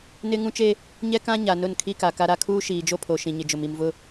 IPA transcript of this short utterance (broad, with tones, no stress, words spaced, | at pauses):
nɪ˦ ŋũ˦t͡ʃe˦ | ɲɛ˦kã˦ɲa˨ nʊ˦˨nkʰi˦ka˨ ka˦ɾa˦ kʰuː˦ʃiː˨d͡ʒo˦pʰo˨ ʃĩ˨ɲɪ˨ d͡ʒʊ˨mi˨mvʊ˦